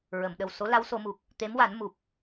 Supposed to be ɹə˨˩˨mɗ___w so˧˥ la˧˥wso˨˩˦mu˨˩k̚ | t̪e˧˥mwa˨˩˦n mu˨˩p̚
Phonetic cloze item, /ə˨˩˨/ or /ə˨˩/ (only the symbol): ə˨˩